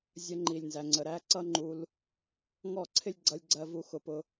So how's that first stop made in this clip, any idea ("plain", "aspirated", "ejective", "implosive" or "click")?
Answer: click